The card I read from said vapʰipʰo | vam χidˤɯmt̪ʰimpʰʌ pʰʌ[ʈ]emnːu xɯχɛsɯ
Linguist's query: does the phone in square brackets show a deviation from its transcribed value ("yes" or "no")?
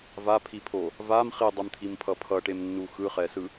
no